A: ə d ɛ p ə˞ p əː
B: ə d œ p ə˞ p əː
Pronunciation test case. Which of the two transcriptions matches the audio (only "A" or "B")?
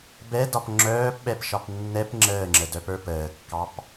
B